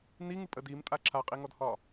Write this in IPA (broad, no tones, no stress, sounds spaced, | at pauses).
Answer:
n i ŋ ɨ pʼ ə d i m tʼ a ǁʰ a qʼ i ŋ ɔ d h ɒ